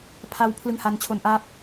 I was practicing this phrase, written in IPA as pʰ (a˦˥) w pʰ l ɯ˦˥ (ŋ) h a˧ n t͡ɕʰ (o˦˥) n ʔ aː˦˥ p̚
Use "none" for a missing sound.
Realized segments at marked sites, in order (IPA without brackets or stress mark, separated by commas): a˦˥, ŋ, o˧